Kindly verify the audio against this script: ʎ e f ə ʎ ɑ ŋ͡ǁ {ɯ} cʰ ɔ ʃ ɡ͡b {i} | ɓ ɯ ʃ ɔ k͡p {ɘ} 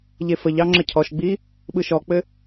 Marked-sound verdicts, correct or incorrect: incorrect, correct, correct

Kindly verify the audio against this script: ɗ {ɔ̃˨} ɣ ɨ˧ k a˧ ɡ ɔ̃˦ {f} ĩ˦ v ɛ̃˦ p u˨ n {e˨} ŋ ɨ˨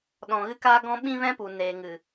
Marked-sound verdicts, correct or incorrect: correct, incorrect, incorrect

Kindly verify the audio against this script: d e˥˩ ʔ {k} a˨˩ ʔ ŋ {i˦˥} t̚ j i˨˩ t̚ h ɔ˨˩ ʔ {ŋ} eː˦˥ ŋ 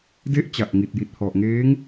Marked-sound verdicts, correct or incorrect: incorrect, incorrect, correct

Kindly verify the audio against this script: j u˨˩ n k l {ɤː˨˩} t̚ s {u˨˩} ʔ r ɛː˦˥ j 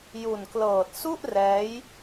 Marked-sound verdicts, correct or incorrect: correct, incorrect

